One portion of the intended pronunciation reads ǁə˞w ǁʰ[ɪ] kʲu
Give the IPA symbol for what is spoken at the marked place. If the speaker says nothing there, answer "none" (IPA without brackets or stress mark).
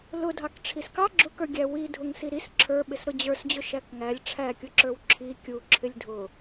i